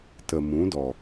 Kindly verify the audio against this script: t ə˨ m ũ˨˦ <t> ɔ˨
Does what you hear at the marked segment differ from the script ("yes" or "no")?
yes